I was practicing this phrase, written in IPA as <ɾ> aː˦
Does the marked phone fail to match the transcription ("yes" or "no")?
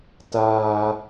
yes